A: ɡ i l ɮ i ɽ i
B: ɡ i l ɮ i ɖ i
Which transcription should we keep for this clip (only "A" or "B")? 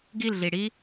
A